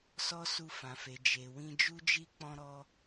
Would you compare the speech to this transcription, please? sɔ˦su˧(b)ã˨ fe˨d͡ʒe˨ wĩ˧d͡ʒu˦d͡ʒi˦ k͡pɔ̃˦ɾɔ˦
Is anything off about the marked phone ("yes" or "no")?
yes